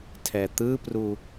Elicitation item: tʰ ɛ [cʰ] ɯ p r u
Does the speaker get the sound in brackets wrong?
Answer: yes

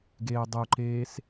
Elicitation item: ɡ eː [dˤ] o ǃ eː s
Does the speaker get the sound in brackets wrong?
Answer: no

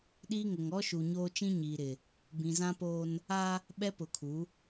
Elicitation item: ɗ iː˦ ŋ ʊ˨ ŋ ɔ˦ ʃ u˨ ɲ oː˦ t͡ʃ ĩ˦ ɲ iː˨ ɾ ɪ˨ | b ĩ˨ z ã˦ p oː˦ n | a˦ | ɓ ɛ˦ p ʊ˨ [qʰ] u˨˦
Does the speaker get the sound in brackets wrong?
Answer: yes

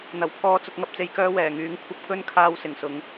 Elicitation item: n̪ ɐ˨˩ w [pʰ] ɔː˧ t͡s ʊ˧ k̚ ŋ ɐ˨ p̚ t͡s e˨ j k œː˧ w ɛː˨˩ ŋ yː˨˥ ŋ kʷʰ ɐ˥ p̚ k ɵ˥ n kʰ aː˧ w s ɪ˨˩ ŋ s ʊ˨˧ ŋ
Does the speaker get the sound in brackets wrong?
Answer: no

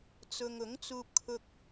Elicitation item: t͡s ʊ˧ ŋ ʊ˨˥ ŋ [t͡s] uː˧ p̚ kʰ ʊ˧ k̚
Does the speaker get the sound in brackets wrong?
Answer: no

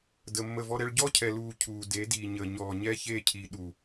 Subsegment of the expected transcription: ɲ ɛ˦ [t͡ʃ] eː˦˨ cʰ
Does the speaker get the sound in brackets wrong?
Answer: yes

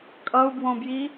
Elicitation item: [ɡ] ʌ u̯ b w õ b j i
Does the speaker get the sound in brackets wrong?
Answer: yes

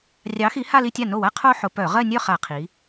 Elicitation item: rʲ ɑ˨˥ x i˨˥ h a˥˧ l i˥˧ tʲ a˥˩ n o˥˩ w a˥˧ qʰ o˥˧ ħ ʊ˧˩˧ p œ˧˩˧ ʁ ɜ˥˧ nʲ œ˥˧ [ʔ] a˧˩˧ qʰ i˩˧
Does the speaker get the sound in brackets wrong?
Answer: yes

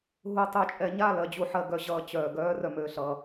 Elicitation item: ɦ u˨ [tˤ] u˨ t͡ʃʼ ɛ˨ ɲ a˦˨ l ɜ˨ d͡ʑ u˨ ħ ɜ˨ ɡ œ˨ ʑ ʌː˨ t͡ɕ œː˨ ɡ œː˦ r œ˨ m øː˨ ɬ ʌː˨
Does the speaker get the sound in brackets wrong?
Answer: no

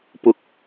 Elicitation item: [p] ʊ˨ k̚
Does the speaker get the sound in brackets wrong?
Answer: no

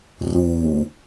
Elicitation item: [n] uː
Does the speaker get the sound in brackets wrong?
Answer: yes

